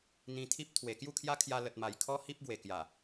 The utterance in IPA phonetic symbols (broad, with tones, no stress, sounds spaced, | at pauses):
n̪ ĩ˧ t̪ʰ i˦ p̚ t̪ʰ w e˨˩ k j u˥˧ kʰ j a˦ kʰ j a˧ l ə˨ t̚ m a˨˩ j kʰ ɔ˦ h i˦ p̚ ɡ w e˨˩ k j a˨˩